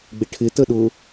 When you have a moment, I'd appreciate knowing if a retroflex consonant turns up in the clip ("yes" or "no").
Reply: yes